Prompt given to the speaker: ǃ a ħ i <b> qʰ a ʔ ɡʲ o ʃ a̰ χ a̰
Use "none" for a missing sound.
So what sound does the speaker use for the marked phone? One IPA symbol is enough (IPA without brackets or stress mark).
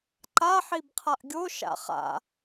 b